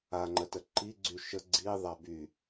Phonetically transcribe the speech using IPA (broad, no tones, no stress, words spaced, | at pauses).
aŋ͡ǃətə ǃiɡ͡ǀy ʃə ɡ͡ǀiðˤa by